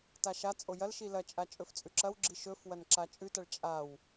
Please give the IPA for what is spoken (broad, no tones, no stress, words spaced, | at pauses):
taʃat͡sʼo jɐlʃi lɐt͡ʃʼa t͡ʃʼɵft͡sʼʉǁɐwɡ͡ǁi ʃɵfwɐn ǁat͡ʃʼʉtɐɭ t͡ʃʼaw